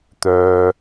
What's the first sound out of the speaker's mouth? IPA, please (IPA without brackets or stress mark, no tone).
t̪